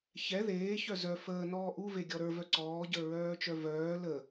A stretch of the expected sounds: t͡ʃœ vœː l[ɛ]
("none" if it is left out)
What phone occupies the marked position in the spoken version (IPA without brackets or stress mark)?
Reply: ə